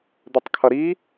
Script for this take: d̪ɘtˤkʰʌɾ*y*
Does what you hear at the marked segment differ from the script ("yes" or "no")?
yes